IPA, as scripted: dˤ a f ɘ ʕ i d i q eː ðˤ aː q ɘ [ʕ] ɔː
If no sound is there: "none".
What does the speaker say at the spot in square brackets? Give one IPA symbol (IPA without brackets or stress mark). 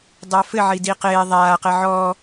ʕ